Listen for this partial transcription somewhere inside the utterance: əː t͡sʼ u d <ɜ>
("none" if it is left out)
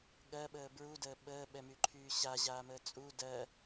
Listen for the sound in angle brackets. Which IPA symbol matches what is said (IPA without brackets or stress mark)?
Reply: ɜ